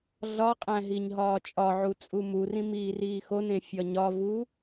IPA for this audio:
ɮ ɒ qʼ æ̃ ɦ i ɲ ɦ ɒː t͡ʃʼ ɒ ʕ u t͡sʼ u m u r ĩ m iː r iː x o n ẽ fʲ ɒ ɲ ɒ v u

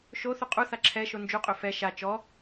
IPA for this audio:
ʃ o θ u qʼ u θ a ǁʰ ɛ ʃ o n d͡ʒ u qʼ ø f ɛ ʃ a t͡ʃ ɔ

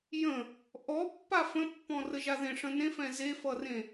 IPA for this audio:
j ə̃ | ʔ ɔ pː a f ə̃ pː ɔ̃ r ə ʒ a ð ẽ ʂ ə̃ n ẽ f ɛ̃ z e f ʌ r ẽ

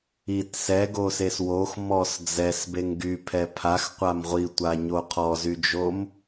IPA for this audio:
i t s ɛ ɡ o s e s w o x m ɔ s d͡z ɛ s b e ŋ ɡ y pʰ ɛ pʰ a x qʷ a m ʁʷ i tʷ a ɲ o qʰ ɔ z y d͡ʒ o m

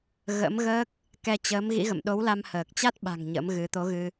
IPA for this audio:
ɣ ə̰˧˥ m ɣ əː˦˥ k̚ | k ɛ˧ t͡ɕ əː˨˦ m ɣ ḭ˧˥ ɣ ə̰˧˨ m ɗ o˨˦ w l a˧ m h əː˨˩ k̚ t͡ɕ a˦˥ t̚ ɓ a̤˨˩ ŋ ɲ ə̰˧˥ m ɣ ɨ˨˦ t̪ o˨˦ ɣ ɨ˧

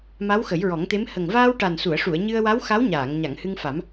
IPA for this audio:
m a˧˥ w x ə˨˩˦ j ɹ ɔ˨˩˦ ŋ t̪ e˧˥ m h ə˨˩ ŋ v aː˧ w ʈ a˨˩ n s u˨˩˨ ə̯ ʂ u˨˩˨ ə̯ ɲ ɨ˧ ə̯ w a˧˥ w x a˧˥ w ɲ aː˨˩˨ ŋ ɲ a˨˩˨ ŋ h ɨ˧ ŋ f a˨˩˦ m

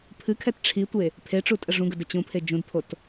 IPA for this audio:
pʰ ɨ kʰ ɛ t ʈ͡ʂʰ i tʷ e | pʰ e ʈ͡ʂ u tʼ ə ʐ ũ ɡ ə d ə t͡ɕ ũ pʰ e d͡ʒ ũ d pʰ o t

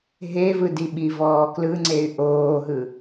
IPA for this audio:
ɦ e v ɯ d i ɓ i v ɔː k l ɯ ŋ͡ǀ e y̯ ʔ oː ɦ ɯ

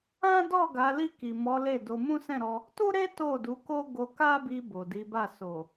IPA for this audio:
ã˦ d ɔ˦˨ ɡ a˨˦ l i˦˨ k i˨ m ɔ˨˦ l e˦˨ d o˧ m ũ˦ s ɛ̃˦˨ ɾ ɔ˧ | t u˦ ɾ e˦ t o˦˨ d u˨˦ k o˦ ɡ o˧ k a˦ b i˧ b o˨ d i˨˦ b a˦˨ s o˨

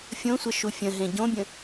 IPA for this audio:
fʲ õ sʷ ə ʃ u fʲ ə̃ ɦ ẽ ɟ õ bʲ ə̃

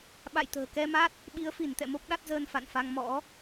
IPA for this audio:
ɓ a̰˧˨ j t̪ ə̤ː˨˩ k ɛ˧ m a˦˥ t̚ | ɓ i˨˦ ə̯ f i˧˩ n t̪ ɛ̰˧˨ m o˦˥ p̚ ɗ a˦˥ t̚ z əː˧ n f a̰˧˨ n f a˧ ŋ m ɔ̰˧˥

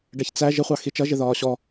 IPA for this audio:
ɖ ɛ ç t͡s æ ʒ ɪ χʷ ɑ x i t͡ʃ ʌ ʒ ɪ ð ɒː ɕ ɔ

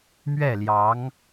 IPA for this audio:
m ɥ ɛ˥˩ l j ɑ˧˥ ŋ

